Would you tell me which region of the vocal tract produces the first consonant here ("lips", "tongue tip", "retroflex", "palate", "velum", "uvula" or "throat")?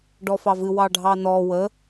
retroflex